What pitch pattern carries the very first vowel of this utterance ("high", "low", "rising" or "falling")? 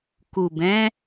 low